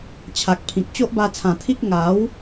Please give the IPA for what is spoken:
t͡ɕʰa˨k̚pʰĩ˨k̚ t͡ɕo˦ʔba˧t͡sʰã˨˩t̪ʰi˦k̚ ŋa˨˦w

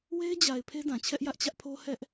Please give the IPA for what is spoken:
we˦ɪ̯d͡ʑa˨ɪ̯ pʰe˦dã˨t͡ɕʰɛ˦ʔjä˦ʔ t͡ɕä˦ʔpʰo˦ hɛ˦ʔ

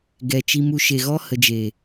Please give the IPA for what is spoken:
ɡɛ˧ t͡ʃi˧mu˧ ʃe˨ɣɔ˧hə˨d͡ʒe˨

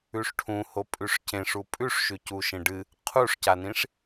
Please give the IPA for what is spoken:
ʉʂʈʰũho pʼʉʂcẽʂu pʼʉʂʃʉ cuʃẽɖɨ | qʰuʂcanĩʂ

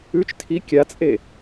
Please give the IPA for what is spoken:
ʉt͡ʃ tʰi kʲat͡sʼe

